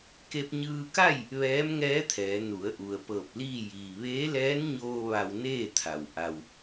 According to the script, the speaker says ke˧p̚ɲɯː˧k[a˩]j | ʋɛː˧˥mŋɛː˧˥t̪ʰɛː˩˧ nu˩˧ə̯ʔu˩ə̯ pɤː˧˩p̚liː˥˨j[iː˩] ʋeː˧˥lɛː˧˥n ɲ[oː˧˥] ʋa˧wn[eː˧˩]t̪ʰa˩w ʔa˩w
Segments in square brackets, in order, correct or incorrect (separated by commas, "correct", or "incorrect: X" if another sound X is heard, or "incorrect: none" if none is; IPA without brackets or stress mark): incorrect: a˥˨, correct, incorrect: oː˧, incorrect: eː˥˨